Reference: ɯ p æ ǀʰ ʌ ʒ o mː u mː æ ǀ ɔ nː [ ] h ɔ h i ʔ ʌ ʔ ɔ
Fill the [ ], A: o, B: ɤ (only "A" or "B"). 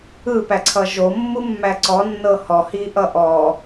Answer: B